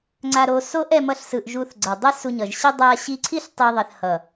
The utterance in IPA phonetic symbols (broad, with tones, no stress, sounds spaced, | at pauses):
ŋ͡ǀ a˧ ɾ o˧ s o˦ ʔ ɛ˦ m ʌ˦ ɬ s ɯ˧ ʔ ʒ u˧ θ ɡ͡ǀ ʌ˨ dˤ e˦ s u˧ ɲ ʌ˨ ʒ ɕ i˦ dˤ a˧ ɕ i˧ ǀʰ i˦ ɬ tˤ i˧ ðˤ ɛ˨ θ h ʌ˨